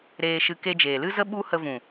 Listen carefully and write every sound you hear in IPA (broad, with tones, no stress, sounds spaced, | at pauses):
ɾ eː˧ ʃ ɨ˧ k e˧ d͡ʒ eː˨ l ɨ˦ z ə˦ ɓ u˦ h ə˧ v ũ˨